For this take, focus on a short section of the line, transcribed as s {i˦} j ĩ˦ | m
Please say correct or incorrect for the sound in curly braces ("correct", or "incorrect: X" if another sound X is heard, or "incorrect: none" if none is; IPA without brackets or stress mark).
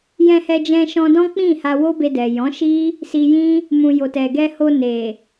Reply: incorrect: i˧